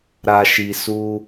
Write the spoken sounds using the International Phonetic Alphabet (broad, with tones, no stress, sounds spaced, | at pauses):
ɾ a˨ ʃ i˨ s u˧